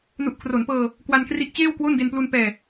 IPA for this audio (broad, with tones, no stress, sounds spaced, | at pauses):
n u˨˩ ʔ kʰ r o˩˦ n p ɤː˧ | k w a˧ n k r i˦˥ ʔ t͡ɕ eː˥˩ w k w o˥˩ n d e˧ n p l u˧ n p ɛː˧